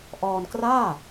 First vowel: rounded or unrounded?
rounded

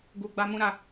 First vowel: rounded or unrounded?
rounded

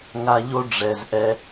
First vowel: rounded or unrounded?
unrounded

